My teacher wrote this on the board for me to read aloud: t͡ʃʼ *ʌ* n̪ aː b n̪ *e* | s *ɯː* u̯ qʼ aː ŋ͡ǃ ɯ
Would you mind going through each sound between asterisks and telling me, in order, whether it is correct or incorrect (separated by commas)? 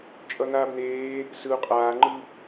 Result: correct, incorrect, incorrect